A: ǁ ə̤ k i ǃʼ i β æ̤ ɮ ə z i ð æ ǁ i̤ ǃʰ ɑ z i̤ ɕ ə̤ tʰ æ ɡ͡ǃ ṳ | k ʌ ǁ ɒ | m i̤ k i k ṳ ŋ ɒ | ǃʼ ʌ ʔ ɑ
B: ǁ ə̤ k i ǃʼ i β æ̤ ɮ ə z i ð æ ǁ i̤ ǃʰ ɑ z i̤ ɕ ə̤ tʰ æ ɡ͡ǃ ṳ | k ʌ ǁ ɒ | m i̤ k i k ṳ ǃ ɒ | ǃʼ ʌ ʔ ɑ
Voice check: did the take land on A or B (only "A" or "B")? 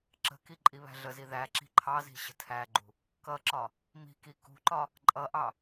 B